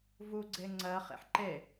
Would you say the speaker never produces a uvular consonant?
no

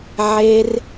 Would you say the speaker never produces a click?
yes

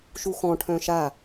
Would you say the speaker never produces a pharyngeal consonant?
yes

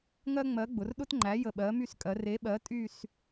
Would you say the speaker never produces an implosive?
no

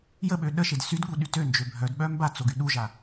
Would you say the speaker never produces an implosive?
no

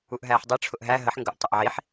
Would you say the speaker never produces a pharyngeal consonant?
no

